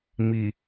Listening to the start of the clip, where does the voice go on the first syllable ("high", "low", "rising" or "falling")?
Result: low